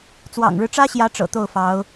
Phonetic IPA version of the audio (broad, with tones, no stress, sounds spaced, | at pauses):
t͡s w ɑ̰˨˩ ŋ ɻ ɻ̩˦ ʈ͡ʂ ä˥ ɕ j ä˧˥ ʈ͡ʂ ɤ̰˨˩ t̪ o˥˩ ʊ̯ f ɑ˧˥ ʊ̯